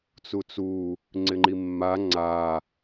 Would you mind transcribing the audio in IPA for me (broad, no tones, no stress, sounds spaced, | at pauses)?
t͡s u t͡s u | ŋ͡ǀ ɪ ŋ͡ǃ i mː a ŋ͡ǀ a